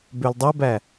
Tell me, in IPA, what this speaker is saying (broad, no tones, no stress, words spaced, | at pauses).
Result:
bøldˤɵbæ